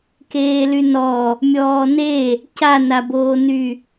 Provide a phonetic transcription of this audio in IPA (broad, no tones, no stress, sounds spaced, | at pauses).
k eː l y n ɔ | mʲ ɔː n e | c a n a b oː n y